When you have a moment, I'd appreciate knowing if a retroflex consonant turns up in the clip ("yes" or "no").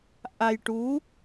yes